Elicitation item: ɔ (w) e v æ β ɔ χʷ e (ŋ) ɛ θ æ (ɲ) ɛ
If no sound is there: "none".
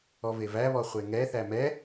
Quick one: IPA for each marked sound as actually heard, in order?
v, ŋ, m

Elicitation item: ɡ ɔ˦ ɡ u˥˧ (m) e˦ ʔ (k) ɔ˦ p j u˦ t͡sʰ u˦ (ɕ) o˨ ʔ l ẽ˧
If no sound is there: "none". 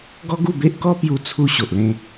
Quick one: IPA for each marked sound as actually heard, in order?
b, k, ɕ

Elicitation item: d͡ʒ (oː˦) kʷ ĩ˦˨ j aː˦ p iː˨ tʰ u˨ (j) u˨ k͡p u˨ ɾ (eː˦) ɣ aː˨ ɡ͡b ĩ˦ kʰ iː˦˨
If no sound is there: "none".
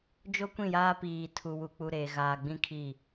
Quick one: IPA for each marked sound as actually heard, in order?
o˦, w, eː˨

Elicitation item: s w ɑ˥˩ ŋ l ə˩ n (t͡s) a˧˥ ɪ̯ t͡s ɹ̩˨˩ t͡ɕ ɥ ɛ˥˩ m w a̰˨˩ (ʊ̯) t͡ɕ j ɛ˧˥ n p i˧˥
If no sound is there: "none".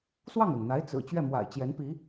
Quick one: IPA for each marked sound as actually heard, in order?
n̪, ɪ̯

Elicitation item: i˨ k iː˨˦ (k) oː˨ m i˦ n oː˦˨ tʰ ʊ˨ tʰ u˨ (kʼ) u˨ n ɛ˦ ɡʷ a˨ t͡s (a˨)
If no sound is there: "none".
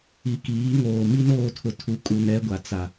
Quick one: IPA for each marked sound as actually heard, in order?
ŋ, kʼ, a˨

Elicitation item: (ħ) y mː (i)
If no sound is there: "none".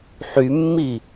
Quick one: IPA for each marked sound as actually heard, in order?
ħ, i

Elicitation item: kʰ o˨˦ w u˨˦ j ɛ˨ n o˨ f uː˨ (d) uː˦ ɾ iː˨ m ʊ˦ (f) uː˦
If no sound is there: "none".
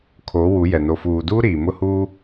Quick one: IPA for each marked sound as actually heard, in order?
d, h

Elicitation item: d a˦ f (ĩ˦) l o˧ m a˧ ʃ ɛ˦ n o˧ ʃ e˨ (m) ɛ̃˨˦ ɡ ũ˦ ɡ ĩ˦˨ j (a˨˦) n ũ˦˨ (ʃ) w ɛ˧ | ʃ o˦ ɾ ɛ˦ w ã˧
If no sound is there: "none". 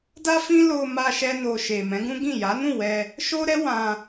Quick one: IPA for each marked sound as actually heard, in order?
ĩ˦, m, a˨˦, none

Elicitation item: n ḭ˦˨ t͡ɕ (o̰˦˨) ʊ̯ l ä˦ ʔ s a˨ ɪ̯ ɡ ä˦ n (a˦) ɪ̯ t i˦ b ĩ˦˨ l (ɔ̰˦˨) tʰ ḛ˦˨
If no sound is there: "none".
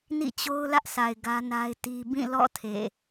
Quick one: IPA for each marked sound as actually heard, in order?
o˦, a˦, ɔ̰˦˨

